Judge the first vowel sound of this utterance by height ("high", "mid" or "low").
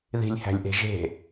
high